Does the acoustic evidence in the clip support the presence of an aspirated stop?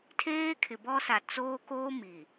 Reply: yes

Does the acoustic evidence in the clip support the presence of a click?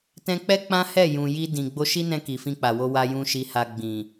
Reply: no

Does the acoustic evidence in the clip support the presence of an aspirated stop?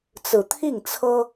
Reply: yes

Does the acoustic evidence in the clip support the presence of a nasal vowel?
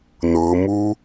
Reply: no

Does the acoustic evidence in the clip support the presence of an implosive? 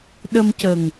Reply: yes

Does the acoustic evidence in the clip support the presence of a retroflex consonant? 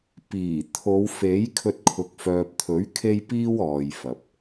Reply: no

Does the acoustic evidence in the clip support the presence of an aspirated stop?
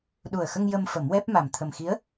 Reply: yes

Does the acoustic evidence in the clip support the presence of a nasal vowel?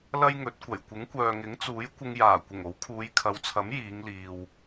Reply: no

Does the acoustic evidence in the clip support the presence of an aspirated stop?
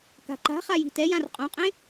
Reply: no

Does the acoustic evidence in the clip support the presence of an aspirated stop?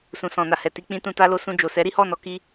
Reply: no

